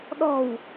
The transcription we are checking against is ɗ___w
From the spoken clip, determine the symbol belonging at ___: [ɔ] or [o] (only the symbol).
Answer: ɔ